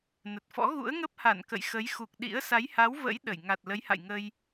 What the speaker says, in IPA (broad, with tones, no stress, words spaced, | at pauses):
nə˨˩t̚fɔ̰˧˥ ɣṵ˧˥ə̯ŋə˦˥p̚ha˧˩n kə̰˧˨jxə˨˦j xu˨˩k̚ɗḭ˧˥ə̯ sa˨˦jha˨˦wvə̰˧˥j ɗə˧˩j ŋa˨˩t̚lə˨˦jha̰˧˨j ŋə˧j